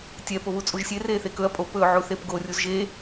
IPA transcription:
tʲ ɛ p o β u t͡sʼ u ʒ sʲ e r eː θ e k ɵ ɐ̯ pʼ o p ɵː ʕ u θ e p ɡ o rʲ u z ʒ e

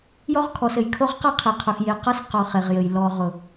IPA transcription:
j ɔ˦ ʁ kʰ ɔ˨ s ɘ˨ j kʰ o˦ ʁ q ʌ˦ qʰ e˨ qʰ ʊ˨ x j e˨ q ʌ˦ s q ɔ˨ χ e˨ ʁ j ɘ˨ j l ɔ˨ ʁ ʊ˨

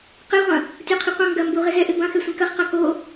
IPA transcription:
q ɛ ʁʷ ɐ̃ | tʲ o qʰ i qʷ ɐ̃ ŋ ɡ ɐ m b u ʁ ɪ z ɛ ʔ ɪ b ɐ̃ x ɛ sʷ ĩ k ɐ χ q a k o

